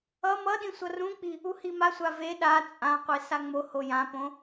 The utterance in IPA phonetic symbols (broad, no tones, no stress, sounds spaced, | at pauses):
ʌ m ʌ ɗ ĩ sʷ ʌ r ũ k͡p i | u h i m a sʷ a v e ɗ a t͡sʼ ã qʷ e s a ŋ͡m o h o j ã p õ